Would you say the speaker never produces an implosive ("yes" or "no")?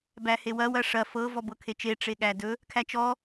no